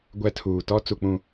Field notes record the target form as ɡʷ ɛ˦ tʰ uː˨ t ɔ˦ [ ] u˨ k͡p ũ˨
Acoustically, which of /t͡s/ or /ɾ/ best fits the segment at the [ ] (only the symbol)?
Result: t͡s